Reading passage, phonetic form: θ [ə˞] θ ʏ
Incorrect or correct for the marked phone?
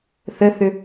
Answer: incorrect: ə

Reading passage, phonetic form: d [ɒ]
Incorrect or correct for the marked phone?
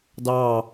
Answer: incorrect: ɑ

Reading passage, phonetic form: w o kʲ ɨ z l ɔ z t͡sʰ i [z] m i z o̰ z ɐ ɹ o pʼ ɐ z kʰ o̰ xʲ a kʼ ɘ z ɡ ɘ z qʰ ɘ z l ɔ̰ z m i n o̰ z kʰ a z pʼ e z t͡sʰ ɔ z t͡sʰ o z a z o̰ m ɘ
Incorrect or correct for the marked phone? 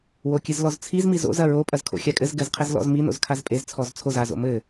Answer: correct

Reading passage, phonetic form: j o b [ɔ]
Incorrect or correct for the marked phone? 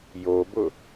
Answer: incorrect: ʊ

